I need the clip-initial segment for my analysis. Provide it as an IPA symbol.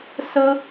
s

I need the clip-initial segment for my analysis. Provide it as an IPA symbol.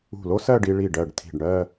ṳ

